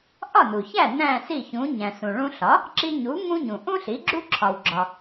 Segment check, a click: present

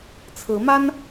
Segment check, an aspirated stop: present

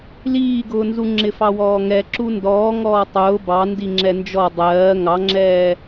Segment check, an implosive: absent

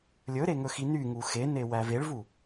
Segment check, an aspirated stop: absent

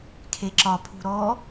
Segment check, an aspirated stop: present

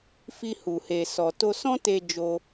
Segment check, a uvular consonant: absent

